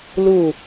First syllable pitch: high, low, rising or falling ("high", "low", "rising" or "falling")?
falling